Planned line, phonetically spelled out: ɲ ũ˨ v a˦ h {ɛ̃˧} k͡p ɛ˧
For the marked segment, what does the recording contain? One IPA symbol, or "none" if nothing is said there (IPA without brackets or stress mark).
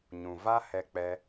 ɛ˧